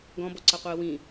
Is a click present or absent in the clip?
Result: present